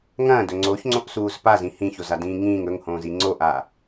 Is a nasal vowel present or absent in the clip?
present